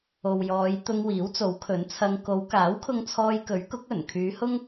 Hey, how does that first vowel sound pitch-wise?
low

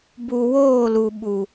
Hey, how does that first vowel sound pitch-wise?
low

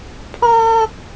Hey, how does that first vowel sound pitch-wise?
high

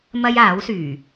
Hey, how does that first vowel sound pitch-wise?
high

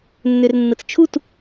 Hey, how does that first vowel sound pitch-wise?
low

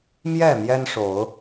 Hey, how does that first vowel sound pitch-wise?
falling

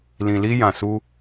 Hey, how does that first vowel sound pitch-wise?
low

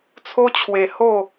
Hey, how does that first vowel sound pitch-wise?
high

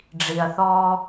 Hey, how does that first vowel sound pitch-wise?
low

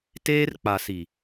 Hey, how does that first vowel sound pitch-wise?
high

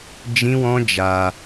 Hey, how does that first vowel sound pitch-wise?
high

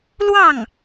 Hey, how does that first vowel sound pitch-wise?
falling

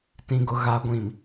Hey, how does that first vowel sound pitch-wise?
low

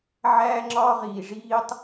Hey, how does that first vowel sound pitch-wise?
high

